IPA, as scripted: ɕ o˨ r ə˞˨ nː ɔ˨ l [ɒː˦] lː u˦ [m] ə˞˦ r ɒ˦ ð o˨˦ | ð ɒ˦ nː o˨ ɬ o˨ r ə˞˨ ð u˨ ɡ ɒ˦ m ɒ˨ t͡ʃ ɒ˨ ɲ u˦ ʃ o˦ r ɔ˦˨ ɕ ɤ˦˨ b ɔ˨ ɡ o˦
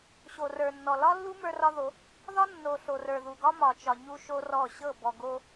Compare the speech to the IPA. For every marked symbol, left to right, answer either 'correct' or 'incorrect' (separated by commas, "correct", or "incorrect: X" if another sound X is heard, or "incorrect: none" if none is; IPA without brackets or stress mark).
incorrect: ɒ˦, correct